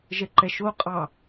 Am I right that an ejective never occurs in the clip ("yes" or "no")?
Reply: no